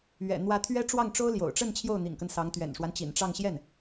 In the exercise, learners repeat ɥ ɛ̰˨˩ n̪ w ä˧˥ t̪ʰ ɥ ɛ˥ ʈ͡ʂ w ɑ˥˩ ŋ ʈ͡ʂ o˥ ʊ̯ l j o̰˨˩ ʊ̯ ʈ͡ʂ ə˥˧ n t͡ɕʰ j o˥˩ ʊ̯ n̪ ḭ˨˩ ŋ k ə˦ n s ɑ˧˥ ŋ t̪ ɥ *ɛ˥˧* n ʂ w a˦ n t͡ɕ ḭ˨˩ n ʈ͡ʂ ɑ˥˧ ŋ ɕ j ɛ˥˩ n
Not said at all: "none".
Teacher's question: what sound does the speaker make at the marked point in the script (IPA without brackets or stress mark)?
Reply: ɛ̰˨˩